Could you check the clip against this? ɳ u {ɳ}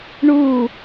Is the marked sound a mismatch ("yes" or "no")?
yes